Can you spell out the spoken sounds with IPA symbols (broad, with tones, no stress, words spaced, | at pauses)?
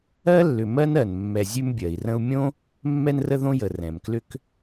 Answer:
ɜ˥lːʏ˨ mɜ˥n ɜ˩nmːɛ˨ zʲʉ˦mbʲɜ˩i̯rə̃˦u̯ mʲõ˥ | mːɛ˦nrə˦ðõ˦jə˩ rɛ̃˩mklʏ˥k